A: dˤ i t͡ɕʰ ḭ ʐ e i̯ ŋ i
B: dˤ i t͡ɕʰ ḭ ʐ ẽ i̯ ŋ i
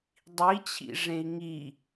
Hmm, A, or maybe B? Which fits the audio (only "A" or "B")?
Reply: B